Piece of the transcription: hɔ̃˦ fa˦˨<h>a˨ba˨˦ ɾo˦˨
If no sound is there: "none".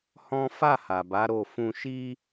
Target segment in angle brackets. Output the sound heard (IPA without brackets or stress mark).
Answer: h